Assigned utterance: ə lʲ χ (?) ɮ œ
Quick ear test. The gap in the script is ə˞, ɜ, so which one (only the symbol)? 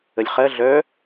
ɜ